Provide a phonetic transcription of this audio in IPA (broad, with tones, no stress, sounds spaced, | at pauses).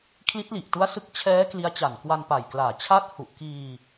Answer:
kʰ l i˦˥ t̚ l i˨˩ ʔ t u˦˥ a̯ s ɯ˦˥ k̚ t͡ɕʰ ɛː˦˥ k l i˦˥ a̯ t͡ɕ a˨˩ n k w a˧ n p a˨˩ j k l aː˨˩ t͡ɕʰ a˥˩ t̚ h u˨˩ ʔ k iː˧